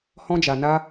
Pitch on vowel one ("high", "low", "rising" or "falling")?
high